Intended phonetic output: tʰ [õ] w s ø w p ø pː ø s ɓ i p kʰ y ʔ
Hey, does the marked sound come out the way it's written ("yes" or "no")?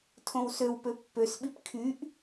yes